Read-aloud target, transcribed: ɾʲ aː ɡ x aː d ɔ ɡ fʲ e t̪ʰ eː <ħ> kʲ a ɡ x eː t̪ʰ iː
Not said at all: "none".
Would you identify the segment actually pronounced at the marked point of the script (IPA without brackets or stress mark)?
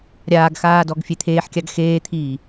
ħ